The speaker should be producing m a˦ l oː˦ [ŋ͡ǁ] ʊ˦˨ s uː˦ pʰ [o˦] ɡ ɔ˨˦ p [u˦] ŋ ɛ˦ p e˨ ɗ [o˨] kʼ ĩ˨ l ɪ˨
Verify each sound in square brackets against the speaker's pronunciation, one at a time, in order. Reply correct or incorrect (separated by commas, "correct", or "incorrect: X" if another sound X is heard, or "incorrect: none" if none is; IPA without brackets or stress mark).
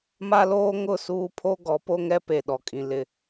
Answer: incorrect: ŋ, correct, incorrect: o˦, incorrect: ɔ˨